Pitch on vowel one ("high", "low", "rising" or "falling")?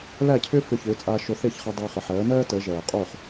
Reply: falling